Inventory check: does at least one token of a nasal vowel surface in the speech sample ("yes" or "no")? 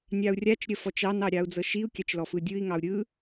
no